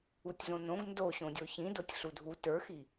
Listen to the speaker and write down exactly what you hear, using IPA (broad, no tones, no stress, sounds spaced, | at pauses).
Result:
u tʲ z õ n õ ɡ n d o ɕ õ dʲ o ç ĩ d o tʲ ɬ u dʱ u t ə˞ x i